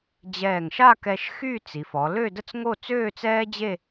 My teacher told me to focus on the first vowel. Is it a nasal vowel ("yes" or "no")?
no